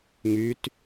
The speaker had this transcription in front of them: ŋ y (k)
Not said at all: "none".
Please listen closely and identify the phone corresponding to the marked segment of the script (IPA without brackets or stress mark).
t